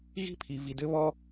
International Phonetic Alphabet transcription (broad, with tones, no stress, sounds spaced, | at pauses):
ɣ i̤˦ pʰ i˧ v i˧ d ɘ˦ β ɔ˦